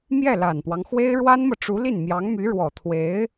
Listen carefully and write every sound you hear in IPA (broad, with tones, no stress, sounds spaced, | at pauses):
m j ɛ˥˩ l a˨˩ n p w ɑ˦ ŋ x w e˥ ɪ̯ ɻ w a˥ n m ɤ˨ ʈ͡ʂ u˧˥ l i˥˩ n m j ɑ˧˥ ŋ m y˧˥ ɻ w ɔ˨˩ t̪ʰ w e˧˥ ɪ̯